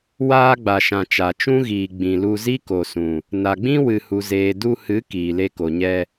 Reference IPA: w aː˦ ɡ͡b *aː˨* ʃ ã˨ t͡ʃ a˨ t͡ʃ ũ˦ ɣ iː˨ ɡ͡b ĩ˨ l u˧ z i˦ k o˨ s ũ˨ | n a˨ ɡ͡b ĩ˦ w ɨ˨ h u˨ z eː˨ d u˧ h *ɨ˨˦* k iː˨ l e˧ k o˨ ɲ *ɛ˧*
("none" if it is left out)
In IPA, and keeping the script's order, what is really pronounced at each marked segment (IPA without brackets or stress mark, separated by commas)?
a˨, ɨ˨˦, ɛ˧